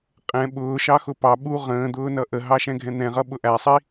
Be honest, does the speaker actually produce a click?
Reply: no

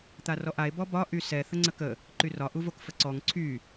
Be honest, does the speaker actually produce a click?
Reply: yes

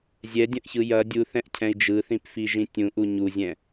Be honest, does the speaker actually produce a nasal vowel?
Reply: yes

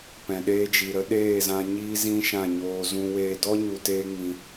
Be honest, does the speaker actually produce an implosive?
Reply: yes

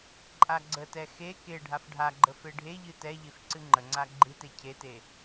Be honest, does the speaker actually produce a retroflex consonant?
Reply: yes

